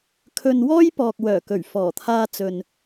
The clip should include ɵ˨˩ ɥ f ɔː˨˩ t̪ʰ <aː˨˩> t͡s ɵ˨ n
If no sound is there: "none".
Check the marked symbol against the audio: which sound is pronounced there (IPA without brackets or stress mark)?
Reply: aː˧